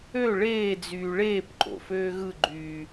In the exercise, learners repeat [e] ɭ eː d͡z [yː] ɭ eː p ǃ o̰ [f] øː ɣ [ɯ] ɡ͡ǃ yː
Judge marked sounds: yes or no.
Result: no, yes, yes, yes

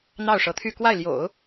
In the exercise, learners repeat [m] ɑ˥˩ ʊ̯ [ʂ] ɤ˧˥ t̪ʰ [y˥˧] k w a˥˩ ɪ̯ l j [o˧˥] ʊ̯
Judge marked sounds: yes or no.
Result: no, yes, yes, no

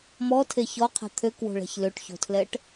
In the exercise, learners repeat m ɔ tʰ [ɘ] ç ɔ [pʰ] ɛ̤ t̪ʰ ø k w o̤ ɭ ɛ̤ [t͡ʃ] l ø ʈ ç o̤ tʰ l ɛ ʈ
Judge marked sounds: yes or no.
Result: no, no, no

